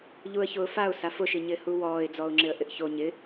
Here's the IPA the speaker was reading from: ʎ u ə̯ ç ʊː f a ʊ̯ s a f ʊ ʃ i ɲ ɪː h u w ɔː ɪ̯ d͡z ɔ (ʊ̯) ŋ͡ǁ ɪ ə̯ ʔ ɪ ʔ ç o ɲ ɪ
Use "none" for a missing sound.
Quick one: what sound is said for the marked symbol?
ʊ̯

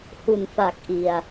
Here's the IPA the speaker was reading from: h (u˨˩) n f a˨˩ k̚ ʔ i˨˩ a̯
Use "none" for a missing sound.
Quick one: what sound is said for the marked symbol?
u˨˩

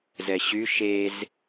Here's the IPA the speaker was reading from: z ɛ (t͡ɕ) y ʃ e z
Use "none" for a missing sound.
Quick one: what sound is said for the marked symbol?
ɕ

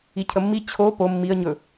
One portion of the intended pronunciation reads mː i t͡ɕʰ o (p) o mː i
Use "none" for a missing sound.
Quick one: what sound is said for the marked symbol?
p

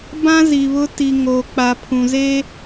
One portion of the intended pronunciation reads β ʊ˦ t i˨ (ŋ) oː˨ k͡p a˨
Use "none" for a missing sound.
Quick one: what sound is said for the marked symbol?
ŋ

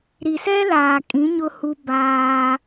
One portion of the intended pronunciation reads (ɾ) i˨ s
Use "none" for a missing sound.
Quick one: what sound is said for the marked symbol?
ɾ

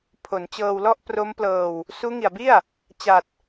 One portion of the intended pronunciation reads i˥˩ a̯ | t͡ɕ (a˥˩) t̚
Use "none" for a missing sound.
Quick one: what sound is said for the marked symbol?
a˨˩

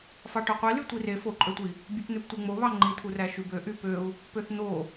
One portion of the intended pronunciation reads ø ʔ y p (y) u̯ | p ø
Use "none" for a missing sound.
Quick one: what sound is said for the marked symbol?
ø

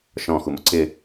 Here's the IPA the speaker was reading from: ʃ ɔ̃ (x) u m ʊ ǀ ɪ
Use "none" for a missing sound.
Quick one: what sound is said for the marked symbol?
x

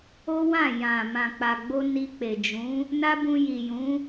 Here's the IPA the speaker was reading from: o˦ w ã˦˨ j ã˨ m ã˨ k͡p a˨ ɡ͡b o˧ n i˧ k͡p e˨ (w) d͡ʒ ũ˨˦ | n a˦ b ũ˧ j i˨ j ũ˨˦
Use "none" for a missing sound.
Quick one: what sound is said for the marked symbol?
none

